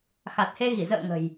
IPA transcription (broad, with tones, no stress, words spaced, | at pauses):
xa˨˩t̚he˧ɣi˧˩ zə̰ː˧˨ ŋə̤˨˩j